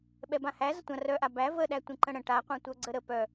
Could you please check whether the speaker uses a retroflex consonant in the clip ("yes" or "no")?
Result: yes